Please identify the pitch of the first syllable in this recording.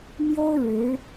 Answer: high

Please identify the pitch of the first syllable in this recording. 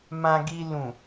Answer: low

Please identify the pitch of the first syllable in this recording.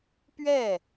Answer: falling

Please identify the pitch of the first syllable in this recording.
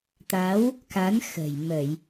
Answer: rising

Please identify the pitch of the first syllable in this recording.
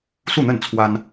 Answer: falling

